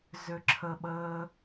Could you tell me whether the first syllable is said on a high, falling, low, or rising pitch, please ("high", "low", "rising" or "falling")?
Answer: low